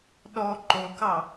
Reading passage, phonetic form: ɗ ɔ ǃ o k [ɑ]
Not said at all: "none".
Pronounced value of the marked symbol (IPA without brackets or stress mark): ɑ